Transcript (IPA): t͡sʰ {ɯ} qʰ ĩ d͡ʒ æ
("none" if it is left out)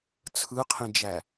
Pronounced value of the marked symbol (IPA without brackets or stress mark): ɯ